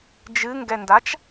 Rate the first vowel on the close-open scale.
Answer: close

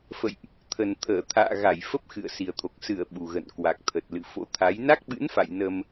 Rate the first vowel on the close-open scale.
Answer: mid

